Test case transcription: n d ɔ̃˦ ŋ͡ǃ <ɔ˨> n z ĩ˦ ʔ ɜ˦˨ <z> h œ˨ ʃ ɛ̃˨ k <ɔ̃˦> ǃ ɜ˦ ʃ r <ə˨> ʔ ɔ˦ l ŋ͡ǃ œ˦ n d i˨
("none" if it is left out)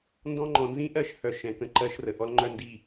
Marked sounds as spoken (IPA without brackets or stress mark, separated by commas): ɔ̃˨, ʃ, ə̃˦, ə˨